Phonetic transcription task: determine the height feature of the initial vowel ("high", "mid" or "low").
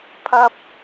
low